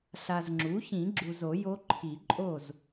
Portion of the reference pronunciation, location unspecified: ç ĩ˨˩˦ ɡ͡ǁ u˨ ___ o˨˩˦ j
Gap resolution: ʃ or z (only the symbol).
z